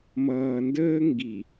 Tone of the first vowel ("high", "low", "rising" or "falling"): low